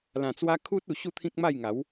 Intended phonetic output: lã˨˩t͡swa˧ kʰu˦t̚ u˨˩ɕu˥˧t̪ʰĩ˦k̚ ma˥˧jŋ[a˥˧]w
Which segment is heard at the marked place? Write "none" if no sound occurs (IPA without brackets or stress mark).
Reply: a˨˦